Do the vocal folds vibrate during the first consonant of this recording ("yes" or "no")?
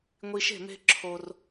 yes